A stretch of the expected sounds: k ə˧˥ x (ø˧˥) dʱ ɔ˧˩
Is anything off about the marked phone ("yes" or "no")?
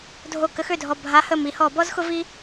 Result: yes